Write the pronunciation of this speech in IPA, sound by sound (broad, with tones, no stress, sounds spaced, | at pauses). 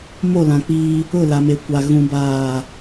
m o˦˨ l ã˨ k͡p iː˦ | ʊ˦˨ l a˨ m e˨ kʷ a˨ ɣ ũ˦ b aː˦˨